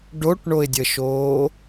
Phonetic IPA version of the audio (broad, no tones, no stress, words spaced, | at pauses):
ɖoʈɳoɪ̯dʲəʃoː